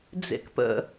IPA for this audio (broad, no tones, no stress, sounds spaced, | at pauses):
d͡z ḛ k p ə̰